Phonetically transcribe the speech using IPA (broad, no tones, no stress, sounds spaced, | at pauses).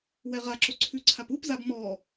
w ɛ ʁ a ǁ o ǀʰ ʉ ǀʰ a p u p z a b m ɔ